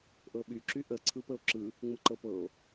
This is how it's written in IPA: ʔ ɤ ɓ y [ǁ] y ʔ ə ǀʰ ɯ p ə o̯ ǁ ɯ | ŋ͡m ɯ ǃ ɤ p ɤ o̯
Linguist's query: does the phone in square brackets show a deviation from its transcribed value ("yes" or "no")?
no